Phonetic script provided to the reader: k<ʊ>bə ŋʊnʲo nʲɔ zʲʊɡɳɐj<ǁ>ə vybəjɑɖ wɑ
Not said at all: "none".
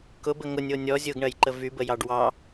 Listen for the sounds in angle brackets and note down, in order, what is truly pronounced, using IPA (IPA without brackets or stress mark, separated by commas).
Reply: ʊ, ǃ